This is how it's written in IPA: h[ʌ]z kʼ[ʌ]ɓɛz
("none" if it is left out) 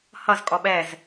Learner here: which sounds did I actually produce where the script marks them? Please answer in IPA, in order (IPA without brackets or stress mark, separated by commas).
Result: ʌ, ɔ